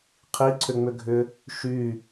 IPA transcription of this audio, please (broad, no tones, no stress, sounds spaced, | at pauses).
qʰ i ǀʰ ʏ ŋ͡m ʏ ɡʱ ʏ | ʃ y